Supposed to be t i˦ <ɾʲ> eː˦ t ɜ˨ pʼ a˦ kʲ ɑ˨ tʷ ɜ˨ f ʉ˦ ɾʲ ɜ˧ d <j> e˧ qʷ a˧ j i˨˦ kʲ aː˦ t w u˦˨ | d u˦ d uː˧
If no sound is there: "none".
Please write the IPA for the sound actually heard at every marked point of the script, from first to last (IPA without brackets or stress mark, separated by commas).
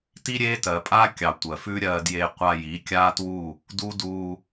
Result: ɾʲ, j